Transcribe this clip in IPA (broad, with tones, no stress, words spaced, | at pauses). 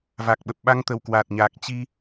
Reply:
va˨˩k̚ɓə˨˩p̚ ɓa˧ŋt̪ə˧˩w kwa˨˩t̚ɲaː˨˩k̚ t͡ɕi˧